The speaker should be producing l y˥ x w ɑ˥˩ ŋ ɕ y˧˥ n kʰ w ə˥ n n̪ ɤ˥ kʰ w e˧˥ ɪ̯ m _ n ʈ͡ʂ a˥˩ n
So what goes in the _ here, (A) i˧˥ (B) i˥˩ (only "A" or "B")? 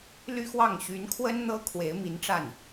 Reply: A